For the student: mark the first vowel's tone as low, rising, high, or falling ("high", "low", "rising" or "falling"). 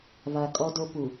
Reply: low